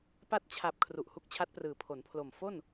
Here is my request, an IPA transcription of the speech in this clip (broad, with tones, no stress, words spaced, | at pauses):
pa˦˥t̚t͡ɕʰa˨˩p̚ kʰru˨˩ʔhu˦˥k̚t͡ɕʰa˦˥t̚prɯː˨˩ pʰo˩˦npʰlo˨˩m fo˥˩n